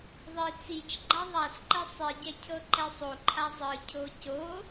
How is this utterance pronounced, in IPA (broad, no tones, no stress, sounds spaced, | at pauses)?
ðˤ i t͡s i t͡ʃ ɡ͡ǃ a ðˤ a s ǃ ɛ sˤ i ɟ ɛ cʰ ɤ ǃ ɛ sˤ o ǃʰ a zˤ ɯ cʰ o c o